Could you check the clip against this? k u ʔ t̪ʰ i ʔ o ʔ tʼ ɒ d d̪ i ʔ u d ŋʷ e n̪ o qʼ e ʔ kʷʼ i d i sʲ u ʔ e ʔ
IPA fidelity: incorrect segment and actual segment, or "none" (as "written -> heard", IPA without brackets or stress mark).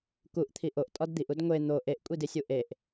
qʼ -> ʔ